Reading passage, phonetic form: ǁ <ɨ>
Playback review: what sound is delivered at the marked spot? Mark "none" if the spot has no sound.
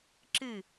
ɨ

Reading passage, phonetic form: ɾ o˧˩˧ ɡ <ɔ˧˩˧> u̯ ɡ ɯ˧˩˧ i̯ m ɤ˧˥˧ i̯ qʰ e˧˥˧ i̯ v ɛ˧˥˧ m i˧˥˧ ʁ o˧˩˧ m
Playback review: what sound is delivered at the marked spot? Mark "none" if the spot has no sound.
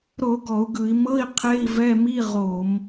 ɔ˧˩˧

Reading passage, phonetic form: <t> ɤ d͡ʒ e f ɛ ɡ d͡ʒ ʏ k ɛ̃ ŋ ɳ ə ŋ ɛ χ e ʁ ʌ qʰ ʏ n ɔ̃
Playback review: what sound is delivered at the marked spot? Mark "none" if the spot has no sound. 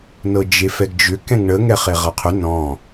n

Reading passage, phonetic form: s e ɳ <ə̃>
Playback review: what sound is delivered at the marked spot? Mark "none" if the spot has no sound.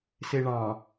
ɑ̃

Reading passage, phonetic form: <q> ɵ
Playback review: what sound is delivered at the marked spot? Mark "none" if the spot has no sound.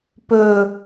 p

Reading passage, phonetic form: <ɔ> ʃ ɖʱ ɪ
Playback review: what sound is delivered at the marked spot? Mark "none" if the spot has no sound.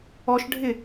ɔ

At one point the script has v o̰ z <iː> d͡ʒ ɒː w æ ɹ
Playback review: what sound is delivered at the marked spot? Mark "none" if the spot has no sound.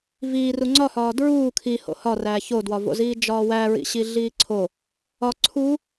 iː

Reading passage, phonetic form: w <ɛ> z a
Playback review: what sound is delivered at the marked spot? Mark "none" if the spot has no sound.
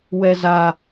ɛ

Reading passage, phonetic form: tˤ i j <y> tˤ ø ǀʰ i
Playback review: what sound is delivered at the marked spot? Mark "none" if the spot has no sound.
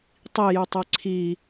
y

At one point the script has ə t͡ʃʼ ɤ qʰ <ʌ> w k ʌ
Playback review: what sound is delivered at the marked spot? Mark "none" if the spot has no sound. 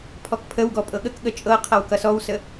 ʌ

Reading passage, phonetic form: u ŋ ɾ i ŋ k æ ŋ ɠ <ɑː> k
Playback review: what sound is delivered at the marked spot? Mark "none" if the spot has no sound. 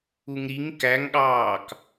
ɑː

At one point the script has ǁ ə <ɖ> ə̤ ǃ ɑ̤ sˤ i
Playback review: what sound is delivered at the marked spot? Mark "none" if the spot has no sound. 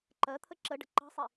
ɖ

